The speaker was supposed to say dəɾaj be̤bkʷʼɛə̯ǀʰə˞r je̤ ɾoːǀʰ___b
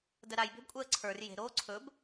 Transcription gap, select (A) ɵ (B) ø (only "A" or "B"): A